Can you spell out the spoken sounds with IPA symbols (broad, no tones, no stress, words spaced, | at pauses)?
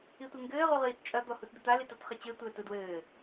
itʷeŋɡɘː ʁuʁiːtt͡ʃʼɐ d̪ɔhutd̪ɨt̪a litɔtχɘt͡ɕɘ tʷɘːtudwɘː